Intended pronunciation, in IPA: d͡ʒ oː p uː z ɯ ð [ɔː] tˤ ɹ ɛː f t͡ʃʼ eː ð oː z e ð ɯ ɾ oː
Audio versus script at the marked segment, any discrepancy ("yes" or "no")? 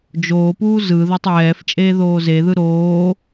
yes